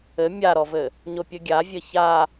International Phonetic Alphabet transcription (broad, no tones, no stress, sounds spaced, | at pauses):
ɘ mʲ a ɾ ɔ v ɘ | ɲ o pʲ ɘ ɡʲ a vʲ ɘ ç a